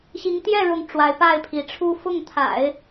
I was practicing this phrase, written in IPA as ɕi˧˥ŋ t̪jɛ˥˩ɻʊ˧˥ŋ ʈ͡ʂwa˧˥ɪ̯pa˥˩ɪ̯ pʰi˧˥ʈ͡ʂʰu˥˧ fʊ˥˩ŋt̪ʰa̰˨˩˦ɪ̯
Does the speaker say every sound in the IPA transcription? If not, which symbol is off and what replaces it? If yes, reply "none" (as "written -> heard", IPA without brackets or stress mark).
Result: none